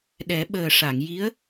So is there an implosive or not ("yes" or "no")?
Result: yes